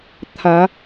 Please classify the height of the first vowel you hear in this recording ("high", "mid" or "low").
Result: low